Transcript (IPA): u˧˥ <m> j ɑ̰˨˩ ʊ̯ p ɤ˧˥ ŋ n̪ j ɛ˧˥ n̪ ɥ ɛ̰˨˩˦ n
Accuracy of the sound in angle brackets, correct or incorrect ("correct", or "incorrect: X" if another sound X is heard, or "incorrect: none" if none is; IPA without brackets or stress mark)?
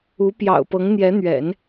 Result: incorrect: p